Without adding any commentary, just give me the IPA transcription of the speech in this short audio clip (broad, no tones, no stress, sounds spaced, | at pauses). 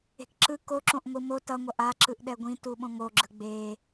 e̤ k ǁ ɯ k o ǁ õ ʔ ŋʷ ɯ m o t ʌ ŋʷ ʌ ʔ a ǁ ɯ ʔ ɗ ɛ ɡʷ ĩ t u ɓ õ ŋ o ɡ͡ǁ ɯ ɡ͡b e